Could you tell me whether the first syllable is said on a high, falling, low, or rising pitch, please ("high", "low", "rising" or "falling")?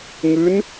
rising